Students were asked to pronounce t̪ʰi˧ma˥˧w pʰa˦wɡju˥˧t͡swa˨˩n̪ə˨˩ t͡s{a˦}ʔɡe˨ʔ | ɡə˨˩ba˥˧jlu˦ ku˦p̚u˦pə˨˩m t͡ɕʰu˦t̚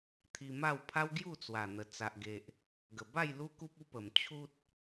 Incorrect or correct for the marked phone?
incorrect: a˨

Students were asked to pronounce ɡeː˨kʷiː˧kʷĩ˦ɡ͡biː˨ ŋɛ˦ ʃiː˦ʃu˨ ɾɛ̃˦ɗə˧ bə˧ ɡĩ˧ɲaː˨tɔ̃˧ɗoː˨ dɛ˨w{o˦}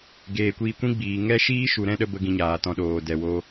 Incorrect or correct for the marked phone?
incorrect: o˧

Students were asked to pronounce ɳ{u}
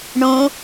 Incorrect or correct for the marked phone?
incorrect: ũ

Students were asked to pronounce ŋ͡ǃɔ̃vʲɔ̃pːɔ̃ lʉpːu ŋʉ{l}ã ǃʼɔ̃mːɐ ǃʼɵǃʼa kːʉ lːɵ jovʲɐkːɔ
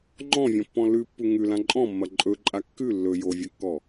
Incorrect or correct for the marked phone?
correct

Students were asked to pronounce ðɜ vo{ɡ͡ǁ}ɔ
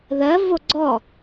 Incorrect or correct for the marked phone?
incorrect: ɡ͡ǀ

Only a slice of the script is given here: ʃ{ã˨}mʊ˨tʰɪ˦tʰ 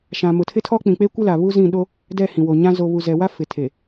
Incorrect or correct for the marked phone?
correct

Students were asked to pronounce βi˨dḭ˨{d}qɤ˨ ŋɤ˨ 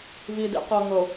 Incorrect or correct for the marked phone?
incorrect: none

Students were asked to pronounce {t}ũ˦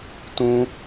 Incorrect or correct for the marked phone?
correct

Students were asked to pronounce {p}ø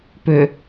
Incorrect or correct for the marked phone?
correct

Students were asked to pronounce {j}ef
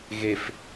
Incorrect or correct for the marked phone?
incorrect: ɣ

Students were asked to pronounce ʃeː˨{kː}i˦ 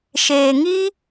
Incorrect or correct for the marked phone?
incorrect: ŋ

